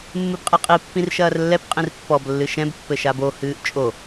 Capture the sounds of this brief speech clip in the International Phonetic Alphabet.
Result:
mːɨbqʼeqʼi pːĩrʃɐːrlːɛp qʼĩrpːɔb lːɨʃɛ̃b pːɘʃabo hɨːʔt͡ʃʼo

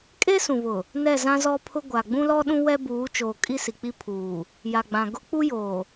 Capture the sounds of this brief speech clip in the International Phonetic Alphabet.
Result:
kʼe˦sũ˨βʊ˨ | nɛ˦˨zã˦zɔ˦pʰʊ˦ ɡʷa˨ ɡ͡bũ˦lɔ˦ɗũ˦ wɛ˦buː˨˦t͡ʃoː˨ kʼi˦si˨k͡pi˦pʰuː˨ | ja˨ɡ͡bã˨ ɡʊ˦ k͡pu˦joː˨

